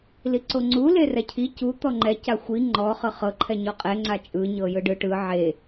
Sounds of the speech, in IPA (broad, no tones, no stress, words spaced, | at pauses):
liǀoŋ͡ǀu lerɛcʰi cu t̪ɔŋ͡ǃɛ caxʷi ŋ͡ǃɔ χɤχɤ ǃʰɛɲɔqʼɛ ŋ͡ǀat͡ʃʼɯ ɲɤjɯɖɯ ʈɯ ʕe